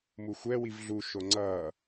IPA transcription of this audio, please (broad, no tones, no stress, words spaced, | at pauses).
muxʷɛ wivɮu ʃoŋ͡ǀʌː